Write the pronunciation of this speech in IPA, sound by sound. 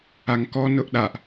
a ŋ k ɔ n ʊ ʔ ɗ a ʔ

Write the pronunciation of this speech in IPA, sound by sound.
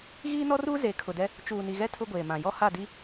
ɣ iː˦ n ɔ˦ r uː˦ z e˨˦ kʰ ʊ˨ d ɛ˦ | t͡ʃ uː˨ n i˨ ɣ ɛ˦ tʰ ʊ˦ ɡʷ eː˨ m ã˨ j ɔ˦ h a˦˨ d i˦

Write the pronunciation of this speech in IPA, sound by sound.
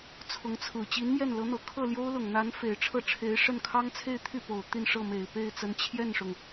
t͡sʰ ʊ˧˥ ŋ t͡sʰ ɹ̩˨˩ t͡ɕ i˧˥ n m j ɛ˥˩ n l ɤ˧˥ n̪ ɤ˨˩ kʰ ɤ˥˩ l j o˥ ʊ̯ l ʊ˨˩ ŋ n̪ a˧˥ n f e˨˩ ɪ̯ ʈ͡ʂʰ ɤ˥˩ ʈ͡ʂʰ e˧˥ ɪ̯ ʂ ə˥˩ n kʰ ɑ˥ ŋ t͡sʰ e˥˧ ɪ̯ t̪ʰ y˥˩ p o˨˩ ʊ̯ t̪ i˥˧ n ʂ ɤ˥˩ m e˨˩ ɪ̯ p e˥˩ ɪ̯ t͡s ə˧˥ n t͡ɕʰ j ɛ˥˩ n ʂ ʊ˩ ŋ

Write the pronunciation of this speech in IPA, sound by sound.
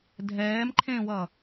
dʱ ɛː m ǃʰ ẽː w ʌ

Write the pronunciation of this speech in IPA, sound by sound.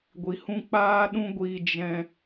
ɡʷ i˨ h ũ˦ k͡p aː˦ ɗ ũ˦ ɡʷ iː˧ d͡ʒ ɛ̃˦

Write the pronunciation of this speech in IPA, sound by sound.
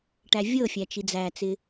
ʈ æ vʲ ɤ fʲ æ t͡ʃ i d͡z æ t͡s ɪ

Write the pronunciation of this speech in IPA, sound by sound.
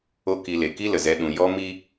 o˦ k i˧ l e˨ k i˦ l ə˨ z ɛ˧ ɗ ũ˨ j ɔ˧ m i˦

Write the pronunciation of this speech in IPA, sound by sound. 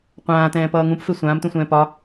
qʷ ãː t ɛ̃ː p ʌː ŋ ũ p f e sʷ ãː m t ũ sʷ ɛ̃ː p ɒ

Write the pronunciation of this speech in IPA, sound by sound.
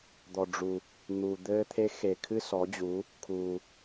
d̪ ɔ˩ ɖ͡ʐ u˩ | n̪ u˩ d̪ ɘː˧ t̪ʰ e˧˥ x e˩ kʰ ɨ˧ s ɔ˩˧ d͡ʑ u˩˧ | kʰ u˩

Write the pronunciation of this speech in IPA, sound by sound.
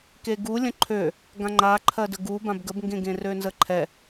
k e ɡ u lʲ ə̃ ǃʰ ø | ɡ ã ŋ͡ǃ a ǃʰ ɜ d ə ɡ u b ã b ɡ ə b ŋ ɡ ẽ ɡ ẽ r ø n z ə ǃʰ ɛ

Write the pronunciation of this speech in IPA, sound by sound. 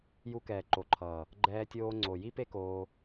j u˧ k ɛː˨ ǃ o˨ ǃʰ ʌː˨ | ɡ͡ǃ ɛː˧ tʲ oː˧ ŋ͡ǀ o˨ j i˦ p e˦ k oː˧

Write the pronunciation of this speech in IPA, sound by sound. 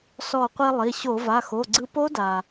s ɔ˧˩ qʷ i˧ lˠ i˩˧˩ ɕ o˧˩˧ v a˩˧˩ x o˩˧˩ ɡ͡ǀ ɯ˧ p o˦˥ d a˩

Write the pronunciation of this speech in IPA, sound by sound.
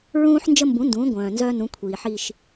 ɹ ũː˦ ħ n d͡ʒ ə˦ m b ũ˩˥ n d ũː˩˥ ɡʷ œ̃ː˩ n z œː˦ n ũ˩˥ kʷʰ iː˩ ħ i˦˨ ʃ

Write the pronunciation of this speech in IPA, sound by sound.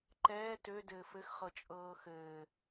ǃ ɛː t ø d ɘː f ɘ x χ ɤ t͡ʃʼ ɤː x ɘː

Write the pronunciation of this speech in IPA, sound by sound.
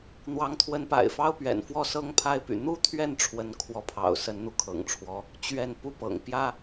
n̪ w ɑ˧˥ ŋ t̪ʰ w ə˧˥ n p a̰˨˩ ɪ̯ f ɑ˥ ʊ̯ p ɥ ɛ̰˨˩ n f w ɔ˥˩ s ɤ˥ ŋ pʰ a˥˩ ɪ̯ p y̰˨˩ n̪ u˥ t̪ʰ ɥ ɛ˥˩ n ʈ͡ʂʰ w ə˧˥ n kʰ w ɔ˧˥ pʰ ɑ̰˨˩ ʊ̯ s ə˧˥ n n̪ u˧ kʰ ɤ̰˨˩ ŋ ʈ͡ʂʰ w ɔ˧˥ | t͡ɕ ɥ ɛ˥˩ n p u˥ p ɤ̰˨˩ ŋ p j ä˥

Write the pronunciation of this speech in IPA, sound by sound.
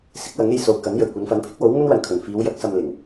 s ɪ˨˥ k̚ w ɐ˨˥ ŋ e˧ j s o˨ w k ɐ˨˥ n j ɵ˨˩ ɥ kʷ ɐ˨˧ n f ɐ˨˥ n pʰ ɪ˥ k̚ w o˨˥ w ŋ ɵ˥ n w ɐ˨ n kʰ ɵ˨˩ n f iː˨˧ w j ɐ˨˥ k̚ s ɐ˧ m l ɪ˨˩ ŋ

